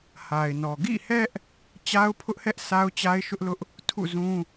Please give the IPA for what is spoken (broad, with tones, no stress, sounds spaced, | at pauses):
h a˨ ɪ̯ n ɔ˨ ɡ ḭ˦˨ h ɛ˦ ʔ | t͡ɕ a˦ ʊ̯ pʰ ʊ˦ ʔ h ɛ˦ ʔ s a˦ ʊ̯ t͡ɕ a˦ ɪ̯ ʃ ʊ˦ ʔ l ʊ˦ ʔ | tʰ ṵ˦˨ z ũ˦